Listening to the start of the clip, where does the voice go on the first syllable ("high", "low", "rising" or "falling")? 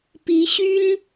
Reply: rising